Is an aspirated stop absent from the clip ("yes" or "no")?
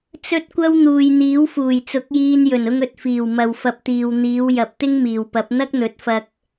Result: yes